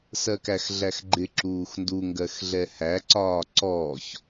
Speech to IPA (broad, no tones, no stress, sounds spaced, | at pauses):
s ɜ k æ x ɮ æ x ɡ͡ǃ ɪ ǁ uː x n d u ŋ ɡ ɜ x ɮ ɛ h æ ǀ ɒː ǀ ɔː ç